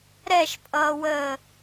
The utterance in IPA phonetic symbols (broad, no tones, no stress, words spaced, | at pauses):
ɾɛʃpʼʌːwəː